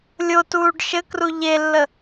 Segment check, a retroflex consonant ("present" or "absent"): present